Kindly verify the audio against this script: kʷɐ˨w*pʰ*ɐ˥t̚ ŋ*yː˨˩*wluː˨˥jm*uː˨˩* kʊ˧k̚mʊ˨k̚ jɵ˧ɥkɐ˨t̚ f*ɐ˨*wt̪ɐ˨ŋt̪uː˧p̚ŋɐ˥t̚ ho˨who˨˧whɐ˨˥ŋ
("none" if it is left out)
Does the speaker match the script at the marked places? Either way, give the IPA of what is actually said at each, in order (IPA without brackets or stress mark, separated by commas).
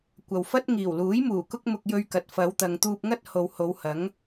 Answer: f, iː˨˩, uː˨˩, ɐ˨˧